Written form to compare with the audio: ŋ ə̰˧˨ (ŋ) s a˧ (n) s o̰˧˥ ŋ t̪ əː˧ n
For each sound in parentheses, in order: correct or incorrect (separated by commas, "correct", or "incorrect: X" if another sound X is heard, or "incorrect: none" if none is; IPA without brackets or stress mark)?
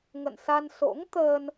incorrect: n, correct